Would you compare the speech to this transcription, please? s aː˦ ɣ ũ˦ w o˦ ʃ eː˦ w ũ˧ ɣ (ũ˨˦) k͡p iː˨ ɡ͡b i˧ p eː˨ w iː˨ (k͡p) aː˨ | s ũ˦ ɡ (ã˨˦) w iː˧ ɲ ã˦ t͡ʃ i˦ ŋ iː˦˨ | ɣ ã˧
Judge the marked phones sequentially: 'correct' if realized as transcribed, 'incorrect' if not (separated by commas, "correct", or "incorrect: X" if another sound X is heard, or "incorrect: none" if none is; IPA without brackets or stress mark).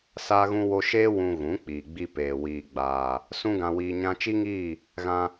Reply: correct, incorrect: ɡ͡b, incorrect: ã˧